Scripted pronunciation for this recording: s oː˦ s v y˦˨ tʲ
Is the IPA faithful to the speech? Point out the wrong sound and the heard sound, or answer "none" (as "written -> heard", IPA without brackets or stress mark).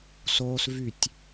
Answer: none